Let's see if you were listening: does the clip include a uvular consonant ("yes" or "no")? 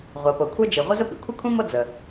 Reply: yes